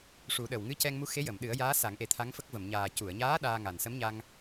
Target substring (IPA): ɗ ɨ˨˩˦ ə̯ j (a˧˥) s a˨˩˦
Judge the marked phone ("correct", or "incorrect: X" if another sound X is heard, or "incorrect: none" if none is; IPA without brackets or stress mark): incorrect: aː˧˥